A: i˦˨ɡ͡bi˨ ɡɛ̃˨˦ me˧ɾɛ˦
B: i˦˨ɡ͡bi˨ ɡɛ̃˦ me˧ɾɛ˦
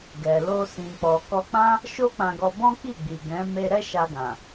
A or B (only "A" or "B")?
A